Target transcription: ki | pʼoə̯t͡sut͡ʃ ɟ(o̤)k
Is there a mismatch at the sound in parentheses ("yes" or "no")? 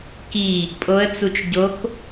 yes